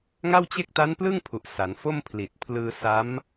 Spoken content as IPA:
ŋ a˥˩ w t͡ɕ e˥˩ k̚ t a˦˥ n p l ɯ˥˩ ŋ pʰ u˨˩ ʔ s a˩˦ n f o˥˩ m pʰ l i˨˩ t̚ pʰ l ɯː˧ s a˦˥ m

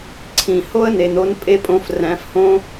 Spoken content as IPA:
ǀʰ ĩ˨ h o˦ ə̯ n e˨ n o˧ n pʼ e˦ pʼ õ˧ f r æ̃˨˦ f h õ˦

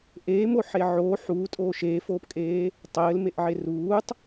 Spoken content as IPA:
ʔ eː m o ħ e ʕ oː ħ uː tʼ oː ʃ eː f oː p kʼ eː | tˤ ɘː l m e ʔ ʕ e r uː tˤ

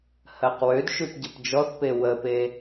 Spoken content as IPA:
h ɜ q w ø d ʃ ʉ p ɟ ə p d͡ʒ ɔ θ p e w ə p e

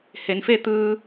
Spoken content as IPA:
h e˩˧ n f e˥˨ t̪ ɯː˧

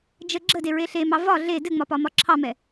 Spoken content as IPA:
d͡ʒ ə ɡ͡ǁ ə d e ɹ e ɬ e m ɑ v ɒ ɮ e d ɘ ŋ͡m ɒ p ɒ m ɒ ǁʰ ɑ m ɛ

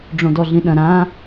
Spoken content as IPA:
ɖ͡ʐ õ d ɔ ɮ ĩ ɗ ɐ̃ ɾ ã

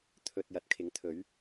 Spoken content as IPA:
t̪ʰ ɵ˨ t̚ j ɐ˨ t̚ kʰ ɪ˨˥ ŋ t̪ʰ ɵ˨˥ ɥ

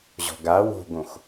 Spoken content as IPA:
ʑ ɔ̤ ɡ a w o̤ ɡ õ x

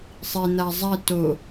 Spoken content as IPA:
sˤ i n̪ a zˤ ɛ t o

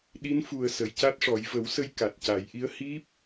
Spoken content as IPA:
ɗ i˧˥ n f u˨˩ ə̯ s ə˨˩˨ j c a˦˥ t̚ ʂ ɔ˨˩˦ j v ə˨˩˦ w s ə˧ j k a˨˩ t̚ c a˨˩˦ j ʔ i˧˥ ə̯ h i˦˥ p̚

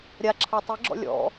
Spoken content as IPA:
ɾʲ a ǁʰ a tˤ i ɡ͡ǁ ɔ̰ lʲ ɔ̰

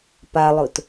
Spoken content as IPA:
p a lˠ ʊ t

